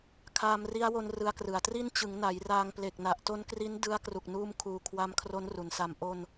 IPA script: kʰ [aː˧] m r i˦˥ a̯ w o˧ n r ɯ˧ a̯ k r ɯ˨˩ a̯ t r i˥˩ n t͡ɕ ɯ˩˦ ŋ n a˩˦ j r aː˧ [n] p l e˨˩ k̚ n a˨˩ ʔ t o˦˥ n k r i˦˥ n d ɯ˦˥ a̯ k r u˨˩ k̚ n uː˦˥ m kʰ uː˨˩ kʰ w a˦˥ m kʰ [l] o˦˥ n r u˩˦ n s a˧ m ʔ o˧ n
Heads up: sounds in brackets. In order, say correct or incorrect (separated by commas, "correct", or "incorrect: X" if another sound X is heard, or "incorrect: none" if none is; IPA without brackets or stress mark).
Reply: correct, incorrect: ŋ, incorrect: r